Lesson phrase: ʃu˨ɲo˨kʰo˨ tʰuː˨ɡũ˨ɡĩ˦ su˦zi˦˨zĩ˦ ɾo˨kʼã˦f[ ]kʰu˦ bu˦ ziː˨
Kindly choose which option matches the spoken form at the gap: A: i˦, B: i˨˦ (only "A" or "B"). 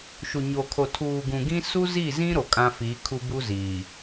B